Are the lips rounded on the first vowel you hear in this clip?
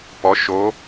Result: yes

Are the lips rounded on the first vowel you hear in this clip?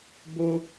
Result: yes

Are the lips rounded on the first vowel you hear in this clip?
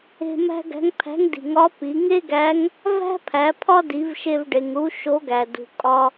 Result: no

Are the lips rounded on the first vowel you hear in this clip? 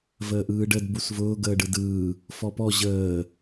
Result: no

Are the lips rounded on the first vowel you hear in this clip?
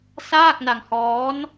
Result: no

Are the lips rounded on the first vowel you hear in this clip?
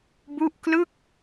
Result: yes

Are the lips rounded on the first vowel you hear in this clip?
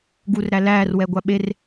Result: yes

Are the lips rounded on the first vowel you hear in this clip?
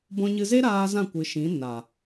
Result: yes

